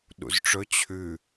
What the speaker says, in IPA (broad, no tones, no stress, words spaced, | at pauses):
ɗṵzʈ͡ʂɵ t͡ɕʰʉ